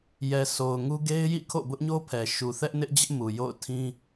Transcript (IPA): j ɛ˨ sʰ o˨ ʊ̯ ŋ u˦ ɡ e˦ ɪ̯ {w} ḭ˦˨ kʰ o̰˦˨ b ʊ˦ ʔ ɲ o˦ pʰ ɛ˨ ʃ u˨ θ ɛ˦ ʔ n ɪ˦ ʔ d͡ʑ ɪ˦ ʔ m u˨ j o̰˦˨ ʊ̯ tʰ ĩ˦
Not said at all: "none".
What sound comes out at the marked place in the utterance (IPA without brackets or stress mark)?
j